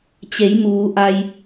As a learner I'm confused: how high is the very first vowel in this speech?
mid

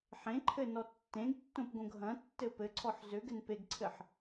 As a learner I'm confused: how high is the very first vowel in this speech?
mid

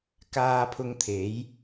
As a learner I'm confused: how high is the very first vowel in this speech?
low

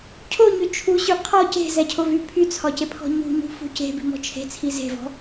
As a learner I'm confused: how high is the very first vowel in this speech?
mid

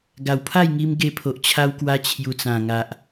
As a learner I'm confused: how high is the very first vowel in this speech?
low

